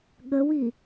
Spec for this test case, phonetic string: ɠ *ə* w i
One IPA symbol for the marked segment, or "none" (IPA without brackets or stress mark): ə